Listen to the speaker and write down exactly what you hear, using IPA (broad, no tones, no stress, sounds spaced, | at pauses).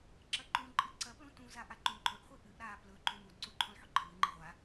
ǁ ɐ ǃ ũ ǃʼ ɨ ǀ ɐ p l ũ t ũ z a ʔ a ǃ ũ ǃʼ ɵ ʔ χʷ i ʔ ɨ ʔ ɾ aː p l ɵ ǃ ũ m u d ǀ u ǃʰ ũ lˠ ħ ɵ ǃʰ ɨː ŋ͡ǃ ɨ ʁʷ a